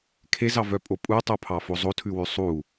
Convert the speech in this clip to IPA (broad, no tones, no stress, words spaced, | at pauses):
kʰezɑvœpʼo pʼutˤopʰɑfo zˤotʰʉwʉ sˤu